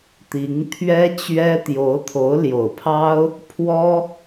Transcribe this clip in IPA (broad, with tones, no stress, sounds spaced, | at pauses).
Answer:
t̪ i˧˥ ŋ t̪ʰ ɥ ɛ˥ t͡ɕ ɥ ɛ˥ t̪ j o˧˥ ʊ̯ t̪ʰ o˧˥ ʊ̯ l j o˨˩ ʊ̯ pʰ ɑ˥ ʊ̯ | pʰ w ɔ˥